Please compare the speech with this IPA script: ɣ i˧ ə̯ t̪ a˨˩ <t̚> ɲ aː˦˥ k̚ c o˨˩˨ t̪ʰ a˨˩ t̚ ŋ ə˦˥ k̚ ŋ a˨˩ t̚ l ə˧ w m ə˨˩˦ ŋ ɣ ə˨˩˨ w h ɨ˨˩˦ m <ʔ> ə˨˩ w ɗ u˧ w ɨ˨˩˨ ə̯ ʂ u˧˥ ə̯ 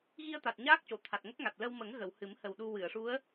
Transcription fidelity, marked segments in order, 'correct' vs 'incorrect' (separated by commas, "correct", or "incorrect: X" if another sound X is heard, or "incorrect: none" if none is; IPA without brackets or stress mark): correct, incorrect: h